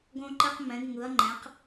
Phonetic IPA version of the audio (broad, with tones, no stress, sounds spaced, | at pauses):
ɡ õ˥ ǃ e˥ q m ɛ̃˨˥ ɡ ŋ ɯ˨˥ ɐ̯ ŋ͡ǃ ɛ̃˨˥ q